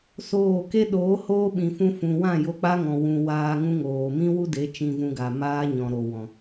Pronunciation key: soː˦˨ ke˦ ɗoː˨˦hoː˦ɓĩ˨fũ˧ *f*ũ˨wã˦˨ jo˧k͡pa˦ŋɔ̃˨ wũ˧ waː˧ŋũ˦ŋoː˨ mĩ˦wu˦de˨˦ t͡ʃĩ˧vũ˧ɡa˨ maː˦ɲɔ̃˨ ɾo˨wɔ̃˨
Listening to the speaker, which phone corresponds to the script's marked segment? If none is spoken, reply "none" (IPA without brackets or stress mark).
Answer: f